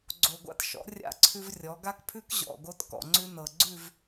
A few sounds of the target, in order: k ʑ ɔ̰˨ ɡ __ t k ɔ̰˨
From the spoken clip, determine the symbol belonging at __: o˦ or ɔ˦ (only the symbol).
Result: o˦